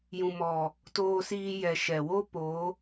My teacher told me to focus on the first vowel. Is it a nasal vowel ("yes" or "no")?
yes